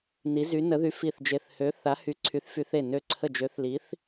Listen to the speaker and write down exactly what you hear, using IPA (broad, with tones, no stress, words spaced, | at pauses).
ni˨˥zy˨˥ nə˨˥ðy˨˥ fi˧˩θd͡ʒe˧˩θhø˨˥ θa˨˥hy˨˥ ǀʰy˨˥θfy˨˥θ e˧˩nø˧˩ǀʰə˧˩ d͡ʒø˨˥θli˨˥θ